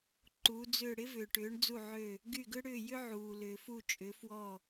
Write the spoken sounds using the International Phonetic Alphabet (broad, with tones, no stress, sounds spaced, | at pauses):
ǃ uː˩˧ d͡z ʏː˧˩ ɽ ɪ˦ v ʏː˩ ʈ ʏː˩˧ ɳ d͡z u˧˩ ʕ ø˧˩ | ɡ y˧˩ ɡ ʏ˦ ɽ ʏː˧˩ j ʏ˦ ʕ uː˩ l ʏː˩ f u˧˩ t͡ʃʼ ʏ˩˧ f w ɔ˧˩